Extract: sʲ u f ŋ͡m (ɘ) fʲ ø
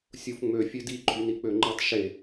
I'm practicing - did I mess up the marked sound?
yes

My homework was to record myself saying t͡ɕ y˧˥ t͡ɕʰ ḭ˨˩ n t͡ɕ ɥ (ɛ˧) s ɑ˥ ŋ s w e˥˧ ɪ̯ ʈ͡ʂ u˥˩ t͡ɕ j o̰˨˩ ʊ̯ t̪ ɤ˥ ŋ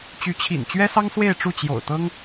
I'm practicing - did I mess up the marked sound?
yes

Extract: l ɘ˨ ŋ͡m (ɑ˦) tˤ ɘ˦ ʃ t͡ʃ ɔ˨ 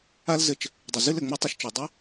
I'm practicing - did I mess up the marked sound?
yes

